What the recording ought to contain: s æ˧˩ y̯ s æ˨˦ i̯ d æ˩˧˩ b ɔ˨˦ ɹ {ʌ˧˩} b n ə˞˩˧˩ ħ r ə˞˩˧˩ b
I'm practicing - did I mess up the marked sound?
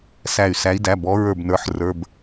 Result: yes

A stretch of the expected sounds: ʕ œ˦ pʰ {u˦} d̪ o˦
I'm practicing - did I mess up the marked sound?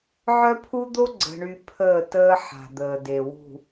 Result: no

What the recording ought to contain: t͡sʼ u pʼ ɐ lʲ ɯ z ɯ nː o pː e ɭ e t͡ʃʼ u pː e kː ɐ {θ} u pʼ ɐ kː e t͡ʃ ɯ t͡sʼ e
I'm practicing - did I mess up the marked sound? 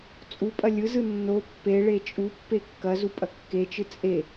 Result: yes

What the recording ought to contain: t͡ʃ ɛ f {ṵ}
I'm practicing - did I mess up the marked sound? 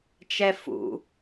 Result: no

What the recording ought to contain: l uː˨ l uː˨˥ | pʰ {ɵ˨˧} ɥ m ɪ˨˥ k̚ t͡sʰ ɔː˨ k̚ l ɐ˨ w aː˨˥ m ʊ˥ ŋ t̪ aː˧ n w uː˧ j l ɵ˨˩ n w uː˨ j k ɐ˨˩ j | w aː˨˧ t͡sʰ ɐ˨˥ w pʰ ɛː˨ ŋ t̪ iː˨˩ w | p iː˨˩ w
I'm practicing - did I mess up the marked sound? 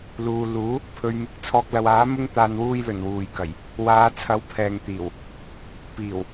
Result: yes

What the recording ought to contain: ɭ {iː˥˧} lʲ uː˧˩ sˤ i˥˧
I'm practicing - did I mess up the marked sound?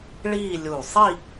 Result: no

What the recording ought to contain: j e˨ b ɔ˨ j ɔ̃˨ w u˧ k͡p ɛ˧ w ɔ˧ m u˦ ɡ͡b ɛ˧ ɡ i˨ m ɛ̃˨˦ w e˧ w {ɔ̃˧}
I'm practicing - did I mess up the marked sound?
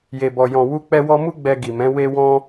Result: no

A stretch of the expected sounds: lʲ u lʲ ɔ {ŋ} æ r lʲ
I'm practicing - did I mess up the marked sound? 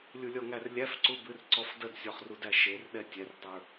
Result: no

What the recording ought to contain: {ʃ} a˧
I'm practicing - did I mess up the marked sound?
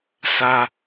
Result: yes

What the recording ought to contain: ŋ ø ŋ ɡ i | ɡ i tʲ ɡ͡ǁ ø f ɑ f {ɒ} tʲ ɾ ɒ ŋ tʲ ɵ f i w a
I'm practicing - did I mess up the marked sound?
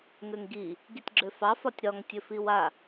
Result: no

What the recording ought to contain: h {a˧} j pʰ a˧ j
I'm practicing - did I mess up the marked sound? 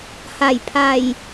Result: yes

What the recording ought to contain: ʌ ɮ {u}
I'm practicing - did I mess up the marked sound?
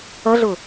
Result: yes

